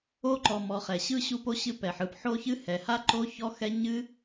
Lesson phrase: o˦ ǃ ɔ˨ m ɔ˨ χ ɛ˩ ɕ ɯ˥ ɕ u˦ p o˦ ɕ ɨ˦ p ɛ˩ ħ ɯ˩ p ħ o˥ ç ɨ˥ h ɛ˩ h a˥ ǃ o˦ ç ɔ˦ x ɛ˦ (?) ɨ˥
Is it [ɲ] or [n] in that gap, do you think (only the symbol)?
ɲ